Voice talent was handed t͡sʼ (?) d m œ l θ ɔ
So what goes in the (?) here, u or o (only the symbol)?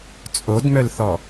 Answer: o